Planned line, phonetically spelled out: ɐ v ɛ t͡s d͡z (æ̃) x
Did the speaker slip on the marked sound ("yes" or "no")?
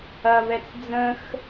yes